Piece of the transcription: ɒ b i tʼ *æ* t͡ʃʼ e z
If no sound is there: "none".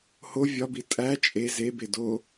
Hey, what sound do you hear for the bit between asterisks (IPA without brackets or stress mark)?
æ